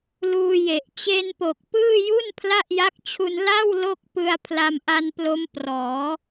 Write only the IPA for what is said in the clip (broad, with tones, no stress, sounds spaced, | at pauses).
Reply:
l uː˧ j e˨˩ ʔ t͡ɕ e˧ n p o˨˩ k̚ p ɯː˥˩ j u˥˩ n pʰ l a˥˩ ʔ j a˦˥ k̚ t͡ɕʰ u˧ n l a˥˩ w l o˥˩ k̚ p ɯ˧ a̯ pʰ l a˧ m ʔ a˧ n p l o˦˥ m p r ɔː˩˦